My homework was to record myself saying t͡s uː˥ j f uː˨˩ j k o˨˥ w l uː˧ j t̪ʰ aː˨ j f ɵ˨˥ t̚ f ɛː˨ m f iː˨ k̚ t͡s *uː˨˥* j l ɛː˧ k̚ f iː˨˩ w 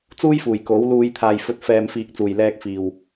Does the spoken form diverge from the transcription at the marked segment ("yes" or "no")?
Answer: yes